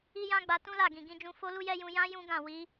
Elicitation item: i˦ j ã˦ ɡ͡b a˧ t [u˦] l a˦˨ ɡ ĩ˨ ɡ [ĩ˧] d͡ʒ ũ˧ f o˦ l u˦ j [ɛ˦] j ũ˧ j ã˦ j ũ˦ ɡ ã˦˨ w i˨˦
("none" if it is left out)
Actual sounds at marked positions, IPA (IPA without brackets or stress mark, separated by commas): ũ˦, ĩ˧, ɛ˦